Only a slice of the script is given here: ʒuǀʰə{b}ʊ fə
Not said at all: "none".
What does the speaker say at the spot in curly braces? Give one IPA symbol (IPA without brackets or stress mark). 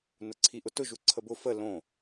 b